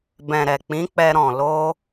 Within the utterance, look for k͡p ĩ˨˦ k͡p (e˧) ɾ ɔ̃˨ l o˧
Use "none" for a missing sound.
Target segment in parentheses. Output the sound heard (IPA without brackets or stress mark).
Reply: ɛ˧